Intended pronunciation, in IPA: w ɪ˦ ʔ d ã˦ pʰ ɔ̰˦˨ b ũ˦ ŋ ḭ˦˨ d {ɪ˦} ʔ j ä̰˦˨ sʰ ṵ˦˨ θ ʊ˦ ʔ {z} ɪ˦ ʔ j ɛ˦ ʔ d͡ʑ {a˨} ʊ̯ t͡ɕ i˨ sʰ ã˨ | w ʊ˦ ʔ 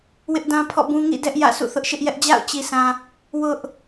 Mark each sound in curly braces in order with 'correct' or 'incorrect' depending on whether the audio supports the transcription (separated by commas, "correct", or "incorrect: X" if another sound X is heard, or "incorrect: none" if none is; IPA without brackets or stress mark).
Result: incorrect: ɛ˦, incorrect: ʃ, incorrect: a̰˦˨